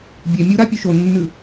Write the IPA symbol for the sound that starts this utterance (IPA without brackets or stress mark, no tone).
bʲ